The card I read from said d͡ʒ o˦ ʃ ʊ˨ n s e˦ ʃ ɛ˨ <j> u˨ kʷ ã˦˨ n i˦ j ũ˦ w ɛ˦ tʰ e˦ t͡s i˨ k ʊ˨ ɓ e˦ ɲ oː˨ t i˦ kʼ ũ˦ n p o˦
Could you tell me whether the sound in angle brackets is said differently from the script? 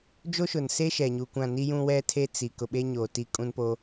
yes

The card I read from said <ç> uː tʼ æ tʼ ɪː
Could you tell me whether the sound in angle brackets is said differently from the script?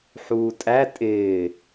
yes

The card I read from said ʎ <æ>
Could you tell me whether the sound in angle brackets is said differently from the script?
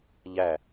no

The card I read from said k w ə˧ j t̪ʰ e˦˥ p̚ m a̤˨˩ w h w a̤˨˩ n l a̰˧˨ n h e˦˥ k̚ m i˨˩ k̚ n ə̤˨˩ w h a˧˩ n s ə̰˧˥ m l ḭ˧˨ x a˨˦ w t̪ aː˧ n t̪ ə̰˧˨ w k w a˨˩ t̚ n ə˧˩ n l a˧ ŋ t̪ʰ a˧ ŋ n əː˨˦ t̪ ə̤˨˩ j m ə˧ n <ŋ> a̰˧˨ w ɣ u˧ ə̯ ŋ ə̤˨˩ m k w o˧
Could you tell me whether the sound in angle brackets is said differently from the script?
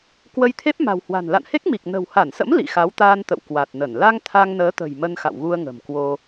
yes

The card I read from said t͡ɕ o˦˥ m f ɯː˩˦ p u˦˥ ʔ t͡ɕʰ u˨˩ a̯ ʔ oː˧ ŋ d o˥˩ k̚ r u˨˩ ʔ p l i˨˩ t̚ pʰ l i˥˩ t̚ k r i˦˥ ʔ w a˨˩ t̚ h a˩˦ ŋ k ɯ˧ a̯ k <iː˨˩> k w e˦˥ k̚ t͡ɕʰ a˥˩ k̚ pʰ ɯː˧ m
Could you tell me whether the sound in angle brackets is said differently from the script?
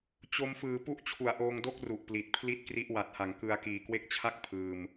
no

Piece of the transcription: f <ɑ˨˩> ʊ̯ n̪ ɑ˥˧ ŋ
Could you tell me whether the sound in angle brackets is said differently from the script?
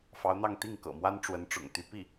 yes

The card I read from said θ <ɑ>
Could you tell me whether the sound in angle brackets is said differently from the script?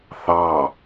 no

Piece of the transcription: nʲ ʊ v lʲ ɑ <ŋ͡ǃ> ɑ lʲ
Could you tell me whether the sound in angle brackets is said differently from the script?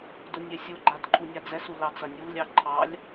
yes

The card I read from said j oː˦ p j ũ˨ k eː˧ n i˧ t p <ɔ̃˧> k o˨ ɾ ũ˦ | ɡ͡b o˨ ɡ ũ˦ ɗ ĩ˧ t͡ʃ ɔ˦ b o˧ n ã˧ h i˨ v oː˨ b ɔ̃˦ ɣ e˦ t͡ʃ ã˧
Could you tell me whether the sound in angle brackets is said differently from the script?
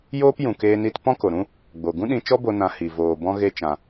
yes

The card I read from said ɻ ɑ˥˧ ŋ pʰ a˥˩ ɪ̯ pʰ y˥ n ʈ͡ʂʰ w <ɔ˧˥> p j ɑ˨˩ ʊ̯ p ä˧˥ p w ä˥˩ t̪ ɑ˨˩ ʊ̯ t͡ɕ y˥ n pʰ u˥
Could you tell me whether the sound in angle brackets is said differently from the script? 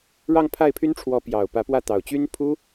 no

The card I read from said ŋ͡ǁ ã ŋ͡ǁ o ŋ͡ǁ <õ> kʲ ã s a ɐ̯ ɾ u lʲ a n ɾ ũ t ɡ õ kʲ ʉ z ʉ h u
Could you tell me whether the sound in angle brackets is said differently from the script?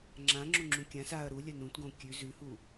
yes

